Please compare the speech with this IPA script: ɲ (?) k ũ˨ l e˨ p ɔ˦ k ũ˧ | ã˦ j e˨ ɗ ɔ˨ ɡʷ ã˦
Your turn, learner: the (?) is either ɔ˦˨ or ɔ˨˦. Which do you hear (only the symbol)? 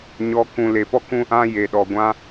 ɔ˨˦